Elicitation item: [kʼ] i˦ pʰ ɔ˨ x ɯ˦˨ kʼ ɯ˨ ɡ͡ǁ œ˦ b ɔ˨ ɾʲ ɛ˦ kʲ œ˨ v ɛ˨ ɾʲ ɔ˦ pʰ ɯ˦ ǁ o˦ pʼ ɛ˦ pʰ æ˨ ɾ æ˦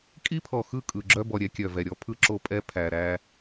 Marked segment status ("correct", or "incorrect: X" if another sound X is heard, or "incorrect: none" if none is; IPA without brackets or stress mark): correct